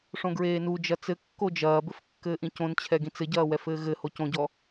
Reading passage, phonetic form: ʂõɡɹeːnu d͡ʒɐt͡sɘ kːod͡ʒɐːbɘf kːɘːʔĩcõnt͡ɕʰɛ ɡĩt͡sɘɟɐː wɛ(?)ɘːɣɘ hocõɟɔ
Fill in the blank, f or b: f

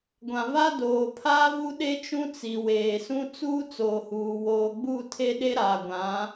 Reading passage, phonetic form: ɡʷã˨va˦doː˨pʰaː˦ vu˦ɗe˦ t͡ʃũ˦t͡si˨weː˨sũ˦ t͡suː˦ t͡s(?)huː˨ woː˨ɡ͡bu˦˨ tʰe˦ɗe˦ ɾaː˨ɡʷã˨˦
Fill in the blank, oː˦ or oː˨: oː˨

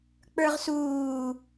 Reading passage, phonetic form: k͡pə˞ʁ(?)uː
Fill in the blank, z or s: s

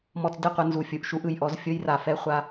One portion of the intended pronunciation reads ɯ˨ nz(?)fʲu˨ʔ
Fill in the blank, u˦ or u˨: u˨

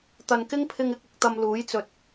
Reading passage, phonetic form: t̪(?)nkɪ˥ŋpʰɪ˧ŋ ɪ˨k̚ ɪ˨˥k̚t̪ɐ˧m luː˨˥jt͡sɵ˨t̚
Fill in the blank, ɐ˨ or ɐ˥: ɐ˨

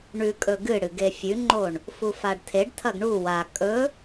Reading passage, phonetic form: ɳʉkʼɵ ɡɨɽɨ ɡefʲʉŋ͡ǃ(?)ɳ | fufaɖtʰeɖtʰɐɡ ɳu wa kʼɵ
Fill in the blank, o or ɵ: o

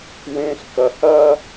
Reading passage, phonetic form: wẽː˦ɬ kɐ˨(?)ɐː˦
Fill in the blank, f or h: h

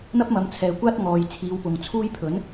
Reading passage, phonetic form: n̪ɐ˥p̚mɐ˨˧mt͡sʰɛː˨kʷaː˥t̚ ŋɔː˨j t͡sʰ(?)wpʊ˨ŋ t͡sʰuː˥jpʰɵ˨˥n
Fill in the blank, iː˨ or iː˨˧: iː˨˧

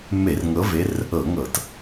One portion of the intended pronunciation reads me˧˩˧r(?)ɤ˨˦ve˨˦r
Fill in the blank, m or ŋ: ŋ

